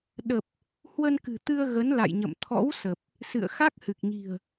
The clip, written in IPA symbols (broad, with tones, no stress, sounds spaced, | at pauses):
ɗ ə˨˩ p̚ | h w ə˧ n k ɨ̤˨˩ t̪ ɨ˧ ə̯ ɣ ə˨˦ n l a̰˧˨ j ɲ ə̰˧˨ m t̪ʰ ɔ̰˧˥ w s ə˨˩ p̚ | s ɨ̰˧˨ ə̯ x a˦˥ k̚ h ɨ˨˩ k̚ ɲ i̤˨˩ ə̯